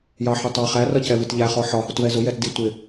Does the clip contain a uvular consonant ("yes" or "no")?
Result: yes